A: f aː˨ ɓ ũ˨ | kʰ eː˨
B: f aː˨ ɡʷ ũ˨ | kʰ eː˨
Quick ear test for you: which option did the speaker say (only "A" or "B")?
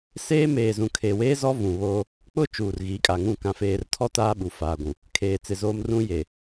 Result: B